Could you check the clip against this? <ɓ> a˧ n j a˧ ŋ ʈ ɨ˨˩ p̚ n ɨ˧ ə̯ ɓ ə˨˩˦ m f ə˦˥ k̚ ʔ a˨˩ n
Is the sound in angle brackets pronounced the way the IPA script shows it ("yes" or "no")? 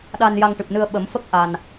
no